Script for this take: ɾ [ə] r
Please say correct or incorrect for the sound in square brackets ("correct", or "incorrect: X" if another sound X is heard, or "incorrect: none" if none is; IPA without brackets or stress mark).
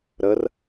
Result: correct